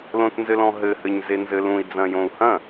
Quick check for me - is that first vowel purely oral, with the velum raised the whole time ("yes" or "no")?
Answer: no